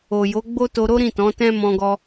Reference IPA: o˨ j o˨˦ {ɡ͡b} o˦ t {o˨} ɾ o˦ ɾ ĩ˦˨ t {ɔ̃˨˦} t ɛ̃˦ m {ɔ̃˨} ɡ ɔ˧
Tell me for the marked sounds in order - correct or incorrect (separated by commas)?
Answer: correct, incorrect, correct, incorrect